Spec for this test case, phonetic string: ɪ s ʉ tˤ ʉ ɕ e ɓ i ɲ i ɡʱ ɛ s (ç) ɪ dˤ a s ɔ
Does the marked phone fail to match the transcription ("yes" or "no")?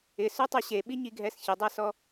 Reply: no